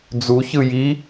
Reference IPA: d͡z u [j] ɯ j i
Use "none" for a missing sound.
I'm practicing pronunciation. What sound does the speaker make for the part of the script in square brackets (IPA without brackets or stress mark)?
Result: ç